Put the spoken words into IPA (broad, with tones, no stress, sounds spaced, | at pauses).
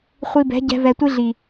χʷ i˧ b ɛ̤˨˦ ɟ ɛ̤˧ v ɛ˨ tʷ i˧ ɮ i˨